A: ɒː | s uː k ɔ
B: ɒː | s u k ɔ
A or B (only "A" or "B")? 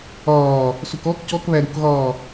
B